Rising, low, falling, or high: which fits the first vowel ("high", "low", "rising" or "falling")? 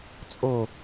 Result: falling